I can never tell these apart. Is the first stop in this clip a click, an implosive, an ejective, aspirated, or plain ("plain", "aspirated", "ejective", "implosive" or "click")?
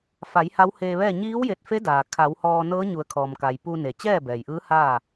plain